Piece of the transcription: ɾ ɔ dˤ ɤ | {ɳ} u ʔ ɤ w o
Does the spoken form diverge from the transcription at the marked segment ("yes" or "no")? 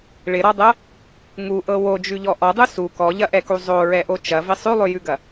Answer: yes